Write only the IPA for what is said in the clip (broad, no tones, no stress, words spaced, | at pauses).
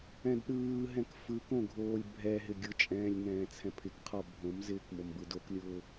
ɛ̃dɗɯːɦɛ̃k fɯkõ ɡʱoːlʲbʱɛɦɪ ɡʲʊt͡ʃʼɛ̃ːlʲ ŋɛ̃ːt͡sʰɛ̃pʰɪkqʰɔ bʱõmzɪːk mombɯdoklʲʊː